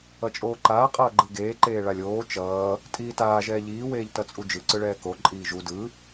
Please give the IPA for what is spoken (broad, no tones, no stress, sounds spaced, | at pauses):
ʌ t͡ʃʼ oː ǃ aː qʼ ʌː ɡ͡ǃ ɯ ɡ eː ǃ eː ɭ a lʲ oː t͡ʃ ʌː | tʼ iː t aː ʒ ɛː ʎ iː w eː ʎ t ʌ t͡sʼ u d͡ʒ ɯ ǀ ɯ ɭ ɛː k o ǃʼ iː ʒ u d ɯ